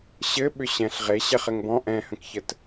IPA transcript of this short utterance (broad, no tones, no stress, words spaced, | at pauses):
ɕɘ ɓʏɕɛ̃ɬ ʁe ɕɛχɘŋbɔ̃ ʔɛ̃hə̃kçət